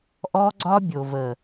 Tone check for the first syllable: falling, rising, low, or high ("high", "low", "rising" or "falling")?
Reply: high